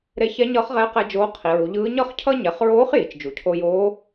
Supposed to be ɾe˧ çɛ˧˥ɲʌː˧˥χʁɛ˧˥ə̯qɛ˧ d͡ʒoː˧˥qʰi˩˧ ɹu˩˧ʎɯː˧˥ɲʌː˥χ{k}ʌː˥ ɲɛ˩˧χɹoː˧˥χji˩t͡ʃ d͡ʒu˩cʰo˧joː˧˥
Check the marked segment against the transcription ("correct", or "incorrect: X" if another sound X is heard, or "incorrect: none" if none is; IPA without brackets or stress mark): incorrect: cʰ